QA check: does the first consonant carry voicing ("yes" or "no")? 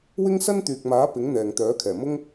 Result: yes